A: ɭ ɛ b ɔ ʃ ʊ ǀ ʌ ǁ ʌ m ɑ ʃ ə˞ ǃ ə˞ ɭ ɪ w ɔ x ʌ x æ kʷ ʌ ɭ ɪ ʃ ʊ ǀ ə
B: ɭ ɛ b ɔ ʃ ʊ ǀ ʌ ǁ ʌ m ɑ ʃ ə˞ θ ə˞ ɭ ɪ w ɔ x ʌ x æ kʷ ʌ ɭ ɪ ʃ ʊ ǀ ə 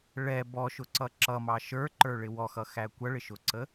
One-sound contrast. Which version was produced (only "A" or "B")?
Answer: A